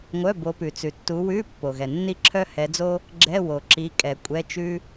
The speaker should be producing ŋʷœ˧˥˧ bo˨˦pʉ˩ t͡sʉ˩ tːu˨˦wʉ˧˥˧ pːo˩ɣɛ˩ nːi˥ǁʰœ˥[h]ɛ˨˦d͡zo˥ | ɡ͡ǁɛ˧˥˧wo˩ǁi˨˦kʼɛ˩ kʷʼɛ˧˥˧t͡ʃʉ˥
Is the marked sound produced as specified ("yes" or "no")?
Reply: yes